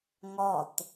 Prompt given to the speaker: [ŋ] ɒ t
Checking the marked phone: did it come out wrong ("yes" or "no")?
no